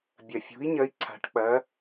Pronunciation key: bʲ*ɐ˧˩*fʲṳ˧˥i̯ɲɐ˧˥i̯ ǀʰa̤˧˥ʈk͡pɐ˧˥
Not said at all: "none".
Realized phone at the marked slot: ɐ˧˩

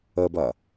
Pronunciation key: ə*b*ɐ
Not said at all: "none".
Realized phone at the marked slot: b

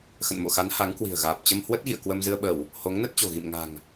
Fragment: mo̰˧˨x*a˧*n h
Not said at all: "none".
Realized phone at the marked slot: a˨˦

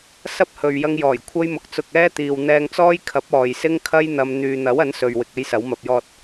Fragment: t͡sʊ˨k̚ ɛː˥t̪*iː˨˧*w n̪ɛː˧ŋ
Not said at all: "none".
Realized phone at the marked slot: iː˨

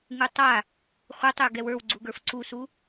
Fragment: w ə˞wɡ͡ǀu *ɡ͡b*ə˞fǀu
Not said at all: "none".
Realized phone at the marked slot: ɡ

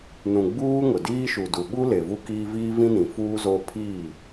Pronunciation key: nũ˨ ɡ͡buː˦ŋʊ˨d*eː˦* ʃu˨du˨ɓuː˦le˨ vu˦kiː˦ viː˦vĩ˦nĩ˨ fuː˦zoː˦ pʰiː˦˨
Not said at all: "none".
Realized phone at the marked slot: iː˦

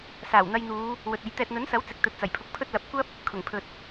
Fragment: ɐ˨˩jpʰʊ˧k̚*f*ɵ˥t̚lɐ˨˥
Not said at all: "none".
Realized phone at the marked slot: pʰ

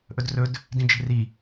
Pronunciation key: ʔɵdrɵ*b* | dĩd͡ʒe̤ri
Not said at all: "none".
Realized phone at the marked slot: d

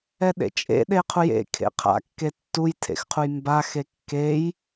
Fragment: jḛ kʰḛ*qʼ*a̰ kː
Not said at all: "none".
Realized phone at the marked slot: qʰ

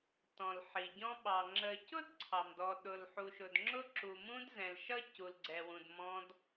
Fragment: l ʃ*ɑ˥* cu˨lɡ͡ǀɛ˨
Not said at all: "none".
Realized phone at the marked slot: ʌ˥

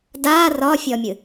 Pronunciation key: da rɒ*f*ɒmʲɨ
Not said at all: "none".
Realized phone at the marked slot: fʲ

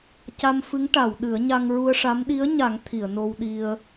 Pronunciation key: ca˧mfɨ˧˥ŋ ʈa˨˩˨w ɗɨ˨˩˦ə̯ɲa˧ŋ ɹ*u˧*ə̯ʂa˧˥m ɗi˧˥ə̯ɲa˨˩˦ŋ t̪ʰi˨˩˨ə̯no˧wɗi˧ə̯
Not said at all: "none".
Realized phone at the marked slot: u˧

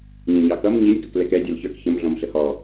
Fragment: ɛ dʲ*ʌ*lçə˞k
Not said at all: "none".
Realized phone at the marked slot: ʌ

